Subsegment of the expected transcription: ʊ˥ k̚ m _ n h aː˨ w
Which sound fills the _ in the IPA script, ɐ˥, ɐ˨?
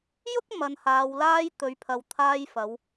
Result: ɐ˨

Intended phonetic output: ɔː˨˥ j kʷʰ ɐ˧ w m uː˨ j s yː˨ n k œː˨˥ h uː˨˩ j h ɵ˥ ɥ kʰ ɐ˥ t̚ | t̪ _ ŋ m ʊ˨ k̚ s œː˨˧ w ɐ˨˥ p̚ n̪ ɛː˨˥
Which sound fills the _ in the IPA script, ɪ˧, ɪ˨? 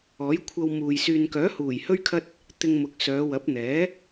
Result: ɪ˧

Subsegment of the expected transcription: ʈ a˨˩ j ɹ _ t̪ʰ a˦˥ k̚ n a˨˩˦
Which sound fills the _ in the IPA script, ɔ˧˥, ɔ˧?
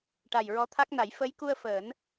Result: ɔ˧˥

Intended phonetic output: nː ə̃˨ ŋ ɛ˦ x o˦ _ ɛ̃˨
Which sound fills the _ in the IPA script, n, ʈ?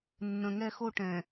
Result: ʈ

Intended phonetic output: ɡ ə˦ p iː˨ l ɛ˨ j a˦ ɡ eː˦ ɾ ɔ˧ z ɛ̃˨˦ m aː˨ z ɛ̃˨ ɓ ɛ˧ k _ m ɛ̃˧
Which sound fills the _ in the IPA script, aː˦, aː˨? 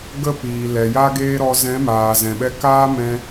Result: aː˦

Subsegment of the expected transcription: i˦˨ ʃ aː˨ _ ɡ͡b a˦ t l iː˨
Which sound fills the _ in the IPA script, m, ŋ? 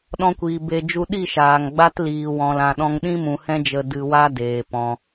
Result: ŋ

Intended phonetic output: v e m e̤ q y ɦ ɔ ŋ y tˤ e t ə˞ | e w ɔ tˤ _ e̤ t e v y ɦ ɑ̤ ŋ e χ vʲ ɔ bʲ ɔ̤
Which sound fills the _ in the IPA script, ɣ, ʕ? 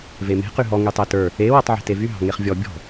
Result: ʕ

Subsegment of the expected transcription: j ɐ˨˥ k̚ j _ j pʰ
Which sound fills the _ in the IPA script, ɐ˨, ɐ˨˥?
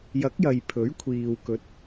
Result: ɐ˨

